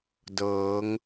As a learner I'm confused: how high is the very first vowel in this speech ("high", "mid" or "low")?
mid